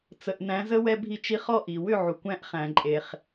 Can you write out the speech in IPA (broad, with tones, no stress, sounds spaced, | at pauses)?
t͡s ə˨ ʔ n æ̃˨˦ z ə˦ w ɛ˧ bʱ i˧ t͡ʃ i˧ χ ɔ˦˨ ʔ i˨ w ʏ˦˨ ʕ u˨ kʷ æ̃˦ ʔ χ æ̃˧ ǃʼ e˧ χ